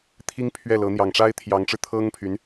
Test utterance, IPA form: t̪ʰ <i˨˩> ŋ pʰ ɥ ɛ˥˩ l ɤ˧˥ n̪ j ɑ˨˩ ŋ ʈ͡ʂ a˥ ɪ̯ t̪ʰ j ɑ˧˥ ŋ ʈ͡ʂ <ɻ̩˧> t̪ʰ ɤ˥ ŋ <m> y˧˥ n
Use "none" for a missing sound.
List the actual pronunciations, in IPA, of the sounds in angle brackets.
i˥, ɻ̩˧, pʰ

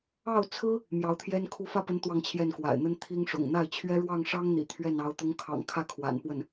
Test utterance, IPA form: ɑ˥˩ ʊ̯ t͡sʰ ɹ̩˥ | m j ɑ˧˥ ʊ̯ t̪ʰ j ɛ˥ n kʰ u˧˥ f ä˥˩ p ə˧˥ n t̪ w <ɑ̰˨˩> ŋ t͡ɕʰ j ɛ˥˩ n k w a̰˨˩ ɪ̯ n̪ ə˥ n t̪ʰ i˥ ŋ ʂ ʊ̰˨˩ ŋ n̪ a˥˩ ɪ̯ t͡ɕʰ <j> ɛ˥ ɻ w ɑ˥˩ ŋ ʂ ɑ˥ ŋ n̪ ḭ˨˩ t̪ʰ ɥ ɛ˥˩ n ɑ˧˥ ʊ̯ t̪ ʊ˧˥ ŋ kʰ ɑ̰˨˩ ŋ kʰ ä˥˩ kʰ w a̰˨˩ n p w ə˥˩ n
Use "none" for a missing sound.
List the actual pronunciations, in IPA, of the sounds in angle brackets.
ɑ˥˧, ɥ

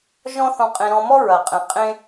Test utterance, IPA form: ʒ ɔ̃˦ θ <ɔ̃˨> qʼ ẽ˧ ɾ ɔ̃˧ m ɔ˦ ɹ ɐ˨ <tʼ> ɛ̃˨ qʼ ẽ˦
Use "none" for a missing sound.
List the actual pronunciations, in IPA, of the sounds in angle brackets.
ɔ̃˧, qʼ

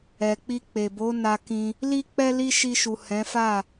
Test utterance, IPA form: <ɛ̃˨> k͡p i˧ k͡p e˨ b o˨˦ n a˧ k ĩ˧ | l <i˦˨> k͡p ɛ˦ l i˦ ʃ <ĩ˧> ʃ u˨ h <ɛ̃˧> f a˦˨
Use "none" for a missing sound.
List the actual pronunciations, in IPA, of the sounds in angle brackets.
ɛ˨, i˦, i˧, ɛ̃˨˦

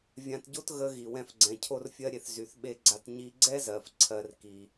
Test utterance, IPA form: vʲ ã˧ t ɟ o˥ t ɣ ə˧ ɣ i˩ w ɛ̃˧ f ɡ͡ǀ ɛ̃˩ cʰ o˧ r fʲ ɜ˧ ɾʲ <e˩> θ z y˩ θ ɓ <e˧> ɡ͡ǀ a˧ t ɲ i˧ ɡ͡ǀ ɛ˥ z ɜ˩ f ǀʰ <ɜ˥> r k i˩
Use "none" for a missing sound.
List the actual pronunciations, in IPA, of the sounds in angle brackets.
e˩, e˧, ɜ˧

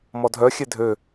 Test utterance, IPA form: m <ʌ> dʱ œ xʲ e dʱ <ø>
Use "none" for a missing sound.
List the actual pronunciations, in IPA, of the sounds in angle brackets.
ɔ, ø

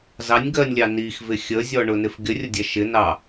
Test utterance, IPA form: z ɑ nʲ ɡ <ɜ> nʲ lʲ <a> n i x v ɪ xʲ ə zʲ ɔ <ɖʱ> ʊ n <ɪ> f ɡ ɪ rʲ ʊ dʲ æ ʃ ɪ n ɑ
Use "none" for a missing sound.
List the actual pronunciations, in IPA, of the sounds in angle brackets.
ɜ, ɑ, ɳ, ɪ

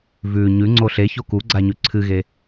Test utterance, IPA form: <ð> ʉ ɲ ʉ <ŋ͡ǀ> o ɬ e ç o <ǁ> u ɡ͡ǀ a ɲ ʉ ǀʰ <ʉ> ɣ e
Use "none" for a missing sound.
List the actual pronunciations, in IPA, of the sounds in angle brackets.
v, ŋ͡ǀ, k, ɨ

